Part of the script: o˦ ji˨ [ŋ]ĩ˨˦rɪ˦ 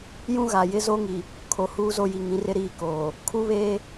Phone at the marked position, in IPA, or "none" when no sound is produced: ŋ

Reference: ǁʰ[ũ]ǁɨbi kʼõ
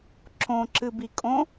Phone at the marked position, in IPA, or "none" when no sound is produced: õ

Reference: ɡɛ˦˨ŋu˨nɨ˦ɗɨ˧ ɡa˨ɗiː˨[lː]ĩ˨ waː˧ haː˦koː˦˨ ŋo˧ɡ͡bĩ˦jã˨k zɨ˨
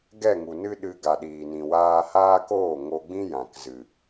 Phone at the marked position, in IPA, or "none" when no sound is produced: n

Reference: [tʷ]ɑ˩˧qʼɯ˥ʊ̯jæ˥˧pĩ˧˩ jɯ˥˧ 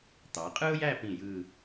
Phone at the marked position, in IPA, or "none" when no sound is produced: t̪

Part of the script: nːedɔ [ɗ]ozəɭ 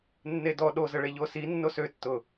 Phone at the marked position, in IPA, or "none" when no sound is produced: ɗ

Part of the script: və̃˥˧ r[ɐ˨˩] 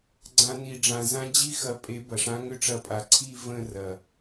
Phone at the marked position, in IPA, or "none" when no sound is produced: ɐ˨˩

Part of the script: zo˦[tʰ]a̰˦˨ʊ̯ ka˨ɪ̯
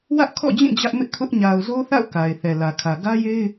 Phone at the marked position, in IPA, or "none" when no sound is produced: θ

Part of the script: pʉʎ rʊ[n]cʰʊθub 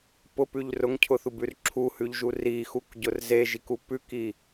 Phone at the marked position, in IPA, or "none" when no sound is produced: ŋ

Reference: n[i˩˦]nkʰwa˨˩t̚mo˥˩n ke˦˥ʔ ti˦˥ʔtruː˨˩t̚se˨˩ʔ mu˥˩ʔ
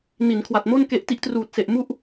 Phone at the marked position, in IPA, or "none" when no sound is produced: i˩˦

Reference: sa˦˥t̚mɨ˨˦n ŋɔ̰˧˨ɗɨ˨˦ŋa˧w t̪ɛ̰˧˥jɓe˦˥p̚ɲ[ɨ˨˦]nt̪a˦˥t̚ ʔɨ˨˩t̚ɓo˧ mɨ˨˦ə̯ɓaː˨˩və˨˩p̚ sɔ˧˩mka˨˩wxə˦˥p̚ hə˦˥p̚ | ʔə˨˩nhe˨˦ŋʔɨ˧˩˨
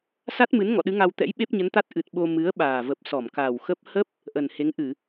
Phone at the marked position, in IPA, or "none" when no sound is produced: ə˨˦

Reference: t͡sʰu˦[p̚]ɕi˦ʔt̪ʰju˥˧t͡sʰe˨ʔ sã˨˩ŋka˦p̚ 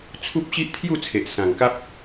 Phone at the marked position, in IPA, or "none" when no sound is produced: p̚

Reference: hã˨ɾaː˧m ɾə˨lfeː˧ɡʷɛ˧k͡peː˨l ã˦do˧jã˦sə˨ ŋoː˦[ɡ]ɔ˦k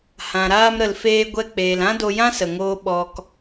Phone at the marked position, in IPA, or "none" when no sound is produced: ɓ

